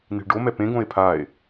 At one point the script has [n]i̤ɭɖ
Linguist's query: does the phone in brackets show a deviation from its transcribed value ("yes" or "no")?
no